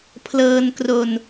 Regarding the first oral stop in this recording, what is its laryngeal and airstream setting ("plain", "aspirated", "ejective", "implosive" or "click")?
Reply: aspirated